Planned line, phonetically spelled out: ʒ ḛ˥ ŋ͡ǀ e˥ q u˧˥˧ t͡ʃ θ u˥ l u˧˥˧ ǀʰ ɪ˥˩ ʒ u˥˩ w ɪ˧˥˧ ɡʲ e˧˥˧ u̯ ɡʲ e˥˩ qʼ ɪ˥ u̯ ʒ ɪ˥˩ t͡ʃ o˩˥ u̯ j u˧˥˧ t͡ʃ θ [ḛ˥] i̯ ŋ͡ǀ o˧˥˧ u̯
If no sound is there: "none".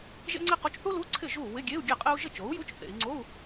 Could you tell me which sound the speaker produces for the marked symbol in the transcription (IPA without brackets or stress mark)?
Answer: ḛ˩˧